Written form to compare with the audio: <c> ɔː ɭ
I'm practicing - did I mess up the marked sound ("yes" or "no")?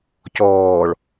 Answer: no